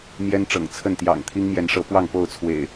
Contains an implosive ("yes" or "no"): no